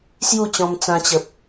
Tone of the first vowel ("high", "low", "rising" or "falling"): falling